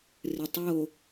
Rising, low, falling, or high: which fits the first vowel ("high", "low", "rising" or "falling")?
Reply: low